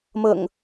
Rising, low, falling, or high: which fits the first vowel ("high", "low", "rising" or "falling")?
low